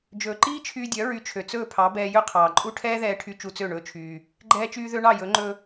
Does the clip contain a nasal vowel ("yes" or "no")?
no